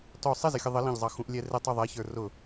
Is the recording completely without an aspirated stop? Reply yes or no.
yes